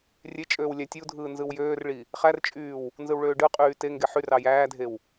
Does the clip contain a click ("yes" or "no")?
no